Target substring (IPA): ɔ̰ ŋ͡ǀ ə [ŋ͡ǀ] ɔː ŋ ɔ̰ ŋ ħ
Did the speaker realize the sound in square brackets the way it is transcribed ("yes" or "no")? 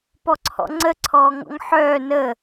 no